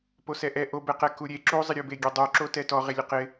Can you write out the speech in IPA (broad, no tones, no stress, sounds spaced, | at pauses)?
p o s ɛ ʔ ɛ ʔ o b ɛ q ɛ k u ɾʲ e ǁ u zˤ ɪ ɾʲ u b e ɡʲ e dˤ u ǁ o t ɛ t ɔ ʁ e lʲ ʊ q ɪ